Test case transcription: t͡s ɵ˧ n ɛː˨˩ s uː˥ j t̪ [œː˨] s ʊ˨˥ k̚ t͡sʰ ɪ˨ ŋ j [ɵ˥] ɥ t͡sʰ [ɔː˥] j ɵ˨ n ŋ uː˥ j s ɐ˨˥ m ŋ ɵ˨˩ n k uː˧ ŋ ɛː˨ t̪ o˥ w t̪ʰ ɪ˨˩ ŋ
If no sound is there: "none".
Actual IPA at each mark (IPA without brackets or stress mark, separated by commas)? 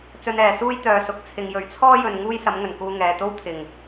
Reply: œː˨, ɵ˨, ɔː˥